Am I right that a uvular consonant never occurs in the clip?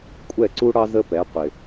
no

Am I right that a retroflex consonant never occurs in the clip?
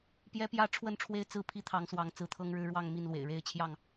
no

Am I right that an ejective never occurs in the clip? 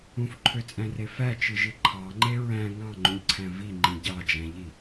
no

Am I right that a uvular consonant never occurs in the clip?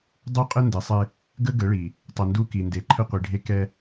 no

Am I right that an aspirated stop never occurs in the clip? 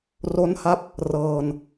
yes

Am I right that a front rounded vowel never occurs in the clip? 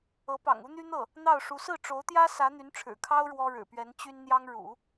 no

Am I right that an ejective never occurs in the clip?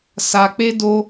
yes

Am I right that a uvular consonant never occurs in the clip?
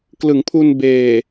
yes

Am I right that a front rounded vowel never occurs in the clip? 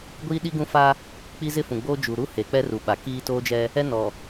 yes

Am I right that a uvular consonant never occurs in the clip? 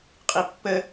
no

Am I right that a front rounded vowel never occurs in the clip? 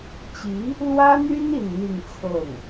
no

